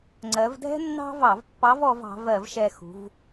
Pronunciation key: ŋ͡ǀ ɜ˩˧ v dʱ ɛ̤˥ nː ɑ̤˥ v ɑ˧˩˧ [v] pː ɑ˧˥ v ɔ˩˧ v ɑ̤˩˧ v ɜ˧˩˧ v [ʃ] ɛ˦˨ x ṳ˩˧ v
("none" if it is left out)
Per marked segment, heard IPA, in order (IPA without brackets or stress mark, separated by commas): v, ʃ